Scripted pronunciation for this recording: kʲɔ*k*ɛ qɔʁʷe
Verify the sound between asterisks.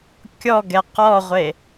incorrect: ɡ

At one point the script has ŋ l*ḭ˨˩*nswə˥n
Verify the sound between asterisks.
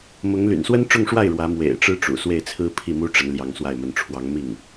incorrect: y̰˨˩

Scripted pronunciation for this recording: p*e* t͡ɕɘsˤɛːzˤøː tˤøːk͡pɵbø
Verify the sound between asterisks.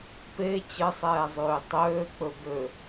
correct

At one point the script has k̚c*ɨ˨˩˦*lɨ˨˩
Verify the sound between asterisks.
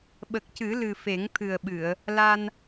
correct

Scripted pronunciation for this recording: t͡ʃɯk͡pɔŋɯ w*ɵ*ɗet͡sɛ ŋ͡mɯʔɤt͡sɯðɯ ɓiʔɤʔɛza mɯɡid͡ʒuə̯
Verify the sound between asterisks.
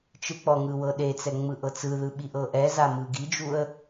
incorrect: ɤ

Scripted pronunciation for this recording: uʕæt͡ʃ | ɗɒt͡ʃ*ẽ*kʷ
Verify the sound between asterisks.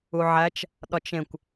correct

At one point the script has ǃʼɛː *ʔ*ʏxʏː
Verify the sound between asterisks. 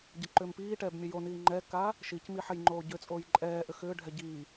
correct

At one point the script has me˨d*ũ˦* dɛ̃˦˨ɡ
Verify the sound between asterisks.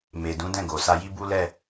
incorrect: ũ˨˦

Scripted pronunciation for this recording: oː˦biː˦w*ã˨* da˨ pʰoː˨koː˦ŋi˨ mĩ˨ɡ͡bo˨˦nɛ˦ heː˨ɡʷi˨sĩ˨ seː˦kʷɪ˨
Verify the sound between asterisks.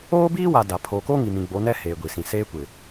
incorrect: a˨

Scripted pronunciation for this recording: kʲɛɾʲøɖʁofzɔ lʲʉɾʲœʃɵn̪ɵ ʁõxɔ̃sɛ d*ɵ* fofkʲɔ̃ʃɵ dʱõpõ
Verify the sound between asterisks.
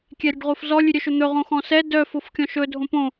incorrect: œ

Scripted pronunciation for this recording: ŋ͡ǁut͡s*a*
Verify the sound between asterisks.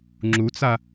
correct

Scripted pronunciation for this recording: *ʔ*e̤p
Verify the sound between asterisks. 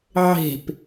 incorrect: ʕ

